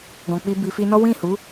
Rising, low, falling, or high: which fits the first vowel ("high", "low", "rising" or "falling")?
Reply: low